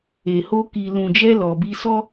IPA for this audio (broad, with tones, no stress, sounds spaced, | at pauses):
e˨ h o˧ k i˨ l ũ˨ d͡ʒ ɛ˧ l ɔ˨ b i˧ s ɔ˦